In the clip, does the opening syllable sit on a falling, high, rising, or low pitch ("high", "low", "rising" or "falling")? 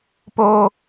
low